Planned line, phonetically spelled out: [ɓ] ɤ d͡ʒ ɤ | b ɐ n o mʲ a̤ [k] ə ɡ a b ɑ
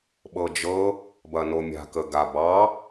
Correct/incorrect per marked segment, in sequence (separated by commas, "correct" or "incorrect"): correct, correct